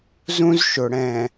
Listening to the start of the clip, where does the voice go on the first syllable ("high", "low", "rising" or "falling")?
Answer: high